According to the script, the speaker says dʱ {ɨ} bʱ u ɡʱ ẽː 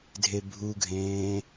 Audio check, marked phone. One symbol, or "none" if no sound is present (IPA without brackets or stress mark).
e